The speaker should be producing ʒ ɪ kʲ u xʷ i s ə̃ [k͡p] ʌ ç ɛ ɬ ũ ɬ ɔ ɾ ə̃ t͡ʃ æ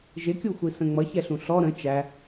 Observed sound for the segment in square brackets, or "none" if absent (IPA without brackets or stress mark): ŋ͡m